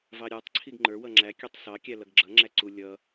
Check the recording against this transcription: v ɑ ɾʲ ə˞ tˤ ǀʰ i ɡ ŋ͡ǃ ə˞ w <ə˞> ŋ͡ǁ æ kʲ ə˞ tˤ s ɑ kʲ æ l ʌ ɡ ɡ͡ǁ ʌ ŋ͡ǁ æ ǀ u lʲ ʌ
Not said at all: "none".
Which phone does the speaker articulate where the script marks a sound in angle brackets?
ʌ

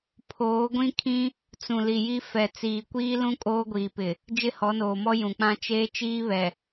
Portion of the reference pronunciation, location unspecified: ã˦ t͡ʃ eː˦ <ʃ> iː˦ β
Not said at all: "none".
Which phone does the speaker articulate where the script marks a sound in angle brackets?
t͡ʃ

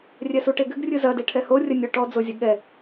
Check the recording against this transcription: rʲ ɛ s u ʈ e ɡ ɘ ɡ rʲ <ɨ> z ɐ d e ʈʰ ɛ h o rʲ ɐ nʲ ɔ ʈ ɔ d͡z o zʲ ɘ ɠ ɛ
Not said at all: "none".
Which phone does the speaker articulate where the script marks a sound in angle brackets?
ɨ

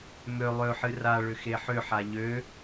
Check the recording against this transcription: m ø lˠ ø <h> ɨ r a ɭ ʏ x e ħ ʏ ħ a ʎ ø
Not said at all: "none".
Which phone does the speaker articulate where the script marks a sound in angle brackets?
ħ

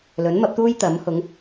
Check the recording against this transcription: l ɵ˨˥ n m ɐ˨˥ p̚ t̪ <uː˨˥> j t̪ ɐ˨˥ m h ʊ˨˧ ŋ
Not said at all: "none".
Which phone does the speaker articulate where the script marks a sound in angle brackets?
uː˥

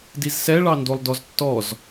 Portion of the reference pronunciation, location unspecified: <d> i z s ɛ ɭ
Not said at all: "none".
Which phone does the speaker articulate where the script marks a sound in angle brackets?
d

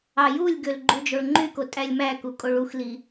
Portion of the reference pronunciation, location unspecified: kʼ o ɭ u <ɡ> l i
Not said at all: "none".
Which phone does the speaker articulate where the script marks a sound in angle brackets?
x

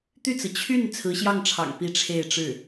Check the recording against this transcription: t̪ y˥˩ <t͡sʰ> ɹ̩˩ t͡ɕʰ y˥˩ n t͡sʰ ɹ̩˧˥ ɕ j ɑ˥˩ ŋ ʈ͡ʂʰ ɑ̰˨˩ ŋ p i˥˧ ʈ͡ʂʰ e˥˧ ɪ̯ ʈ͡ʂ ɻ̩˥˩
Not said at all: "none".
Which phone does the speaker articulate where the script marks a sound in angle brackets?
t͡s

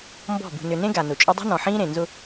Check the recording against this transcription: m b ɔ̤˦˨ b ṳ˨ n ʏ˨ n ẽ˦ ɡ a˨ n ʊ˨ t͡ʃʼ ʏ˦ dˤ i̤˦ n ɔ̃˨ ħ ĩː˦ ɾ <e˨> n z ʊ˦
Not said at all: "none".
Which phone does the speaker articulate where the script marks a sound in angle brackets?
ẽ˨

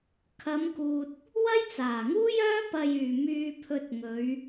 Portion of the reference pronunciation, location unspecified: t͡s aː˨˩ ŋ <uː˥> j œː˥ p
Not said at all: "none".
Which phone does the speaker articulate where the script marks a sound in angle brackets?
uː˥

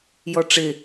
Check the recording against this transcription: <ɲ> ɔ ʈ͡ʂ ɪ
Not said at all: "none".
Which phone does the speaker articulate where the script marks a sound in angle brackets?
j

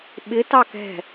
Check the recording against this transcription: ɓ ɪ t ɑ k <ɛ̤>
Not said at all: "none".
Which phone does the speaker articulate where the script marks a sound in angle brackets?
ɛ̤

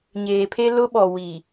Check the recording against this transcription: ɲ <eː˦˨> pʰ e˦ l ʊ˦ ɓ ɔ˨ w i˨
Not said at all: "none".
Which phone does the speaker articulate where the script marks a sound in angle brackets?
eː˨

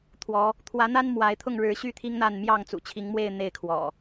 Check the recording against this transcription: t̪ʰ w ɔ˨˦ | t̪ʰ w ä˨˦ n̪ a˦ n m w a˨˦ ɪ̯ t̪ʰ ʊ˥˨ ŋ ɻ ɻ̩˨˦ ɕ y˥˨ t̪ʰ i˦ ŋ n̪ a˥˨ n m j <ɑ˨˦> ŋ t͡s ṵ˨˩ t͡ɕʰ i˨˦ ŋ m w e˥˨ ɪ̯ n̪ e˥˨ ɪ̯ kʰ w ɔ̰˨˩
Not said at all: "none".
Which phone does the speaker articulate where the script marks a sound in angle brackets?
ɑ˥˨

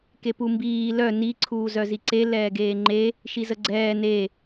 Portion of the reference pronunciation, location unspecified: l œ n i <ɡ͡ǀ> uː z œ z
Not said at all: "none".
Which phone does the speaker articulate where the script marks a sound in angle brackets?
ǀʰ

